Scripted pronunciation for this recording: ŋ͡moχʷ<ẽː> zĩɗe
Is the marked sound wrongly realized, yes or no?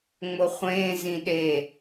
no